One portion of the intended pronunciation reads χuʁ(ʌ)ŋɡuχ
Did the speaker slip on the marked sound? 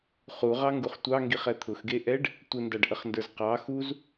yes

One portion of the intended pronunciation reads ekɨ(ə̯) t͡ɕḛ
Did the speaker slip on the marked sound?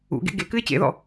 yes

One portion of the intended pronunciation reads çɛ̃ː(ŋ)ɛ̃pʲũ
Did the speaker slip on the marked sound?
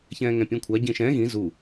no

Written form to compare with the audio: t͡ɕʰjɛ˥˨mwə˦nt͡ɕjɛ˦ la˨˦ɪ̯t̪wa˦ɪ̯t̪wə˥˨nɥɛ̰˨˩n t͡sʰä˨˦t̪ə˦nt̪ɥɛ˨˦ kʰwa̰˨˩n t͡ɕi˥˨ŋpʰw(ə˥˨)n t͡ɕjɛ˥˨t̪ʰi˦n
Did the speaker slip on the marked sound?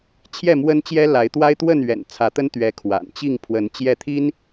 yes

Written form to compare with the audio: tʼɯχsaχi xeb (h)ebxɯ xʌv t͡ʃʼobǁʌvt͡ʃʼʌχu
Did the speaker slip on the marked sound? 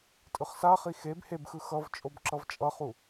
no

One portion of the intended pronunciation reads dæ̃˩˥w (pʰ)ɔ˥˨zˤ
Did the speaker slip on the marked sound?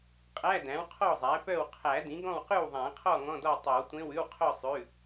yes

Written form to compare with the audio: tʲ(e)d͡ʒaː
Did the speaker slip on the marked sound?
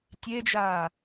no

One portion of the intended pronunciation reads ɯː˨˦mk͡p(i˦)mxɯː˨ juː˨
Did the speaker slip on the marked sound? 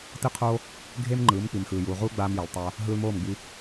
yes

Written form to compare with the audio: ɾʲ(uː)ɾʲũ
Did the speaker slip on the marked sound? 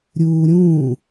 no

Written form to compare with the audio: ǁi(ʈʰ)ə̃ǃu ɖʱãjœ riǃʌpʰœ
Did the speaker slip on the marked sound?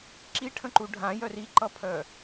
no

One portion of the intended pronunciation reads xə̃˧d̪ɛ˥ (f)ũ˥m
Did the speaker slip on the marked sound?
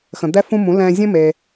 no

